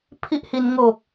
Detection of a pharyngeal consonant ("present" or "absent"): absent